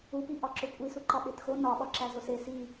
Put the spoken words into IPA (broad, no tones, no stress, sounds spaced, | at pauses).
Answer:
u p i ʔ ɒ ǁ o kʷʼ i s u ǃ ɒ ɓ e t x o n ɒ ɓ ɒ ǁ æ z o s e s i